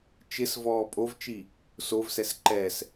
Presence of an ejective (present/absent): present